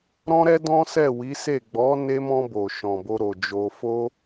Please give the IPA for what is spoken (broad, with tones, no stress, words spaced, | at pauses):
ɾɔ̃˦ɾɛ˦dɔ̃˦ sɛ˦˨wi˨˦se˦˨ ɡ͡bɔ˨˦ne˧mɔ̃˧ bo˨ʃɔ̃˨bo˧ ɾo˨d͡ʒo˧ fo˦